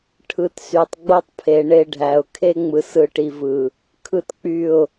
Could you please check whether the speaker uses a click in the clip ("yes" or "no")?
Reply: no